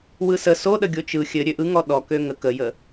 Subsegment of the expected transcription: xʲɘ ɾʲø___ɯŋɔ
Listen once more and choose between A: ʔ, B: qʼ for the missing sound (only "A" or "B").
A